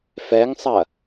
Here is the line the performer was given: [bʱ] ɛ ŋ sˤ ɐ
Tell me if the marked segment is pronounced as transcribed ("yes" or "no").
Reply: no